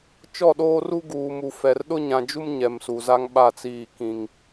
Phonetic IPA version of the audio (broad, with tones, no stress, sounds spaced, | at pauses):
t͡ʃ ɔ˦˨ ɗ oː˦ r u˦ ɡ uː˨ m u˨ f ɛ˨ r ɗ ʊ˦ ɲ ã˨ d͡ʒ u˦ m ɲ ɛ˨ m s u˨ z a˦ ŋ ɓ a˦˨ t͡s iː˦˨ k ĩ˦ ŋ